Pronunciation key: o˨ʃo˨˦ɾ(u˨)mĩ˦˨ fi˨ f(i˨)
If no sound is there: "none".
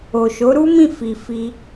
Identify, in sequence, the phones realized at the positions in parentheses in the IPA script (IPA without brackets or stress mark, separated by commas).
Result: u˦, i˧